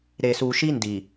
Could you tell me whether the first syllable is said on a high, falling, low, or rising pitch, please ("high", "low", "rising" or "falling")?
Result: low